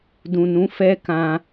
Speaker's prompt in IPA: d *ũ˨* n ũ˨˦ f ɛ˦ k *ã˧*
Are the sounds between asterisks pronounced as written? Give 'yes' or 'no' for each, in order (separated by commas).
yes, yes